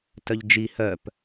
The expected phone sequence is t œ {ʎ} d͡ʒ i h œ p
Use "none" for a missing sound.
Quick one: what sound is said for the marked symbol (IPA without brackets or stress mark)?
ʎ